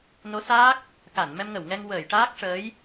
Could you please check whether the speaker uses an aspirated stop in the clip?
no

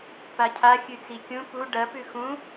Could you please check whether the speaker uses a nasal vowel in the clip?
yes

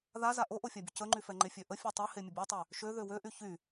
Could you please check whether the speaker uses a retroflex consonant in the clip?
no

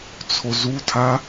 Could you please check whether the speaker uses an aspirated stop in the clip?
yes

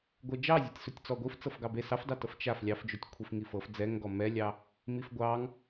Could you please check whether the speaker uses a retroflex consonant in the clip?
no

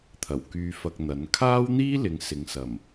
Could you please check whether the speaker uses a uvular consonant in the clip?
no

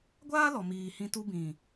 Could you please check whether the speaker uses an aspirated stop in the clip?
no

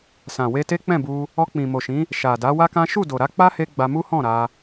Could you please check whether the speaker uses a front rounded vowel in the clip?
no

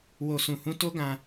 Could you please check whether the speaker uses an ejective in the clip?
no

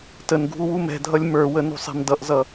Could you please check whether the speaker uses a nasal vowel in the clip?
no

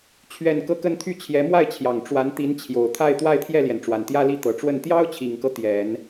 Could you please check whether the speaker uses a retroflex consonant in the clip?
yes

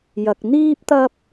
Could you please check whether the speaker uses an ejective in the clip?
no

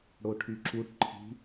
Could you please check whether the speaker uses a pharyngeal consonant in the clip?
no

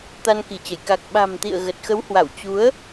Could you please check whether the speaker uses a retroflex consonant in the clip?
no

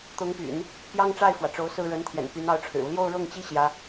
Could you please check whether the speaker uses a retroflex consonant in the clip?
yes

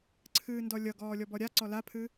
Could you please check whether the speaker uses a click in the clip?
yes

